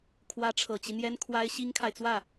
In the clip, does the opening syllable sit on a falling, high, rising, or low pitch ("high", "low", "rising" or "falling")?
rising